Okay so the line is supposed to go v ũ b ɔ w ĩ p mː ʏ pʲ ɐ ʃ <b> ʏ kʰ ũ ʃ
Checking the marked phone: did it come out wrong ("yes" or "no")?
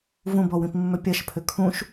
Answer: yes